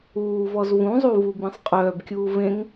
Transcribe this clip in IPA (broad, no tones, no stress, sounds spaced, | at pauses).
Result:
uː v ɔ z v ũ zˤ u v u b ĩ sˤ qʼ œː b kʲ uː v ẽ ŋ